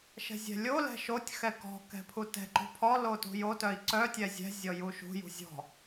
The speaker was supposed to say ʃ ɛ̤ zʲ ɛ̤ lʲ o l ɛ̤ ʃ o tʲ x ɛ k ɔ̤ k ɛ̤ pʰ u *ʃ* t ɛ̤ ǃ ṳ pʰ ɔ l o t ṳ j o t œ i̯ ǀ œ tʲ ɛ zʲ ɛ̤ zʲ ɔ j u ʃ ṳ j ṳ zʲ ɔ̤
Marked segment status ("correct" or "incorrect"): incorrect